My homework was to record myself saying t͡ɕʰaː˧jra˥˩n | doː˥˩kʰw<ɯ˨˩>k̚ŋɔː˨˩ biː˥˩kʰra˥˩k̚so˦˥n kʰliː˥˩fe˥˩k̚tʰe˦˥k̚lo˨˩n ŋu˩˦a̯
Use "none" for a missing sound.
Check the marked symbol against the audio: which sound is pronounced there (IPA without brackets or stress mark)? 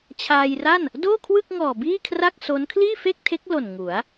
ɯ˥˩